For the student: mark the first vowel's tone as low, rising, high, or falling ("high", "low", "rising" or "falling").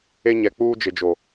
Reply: high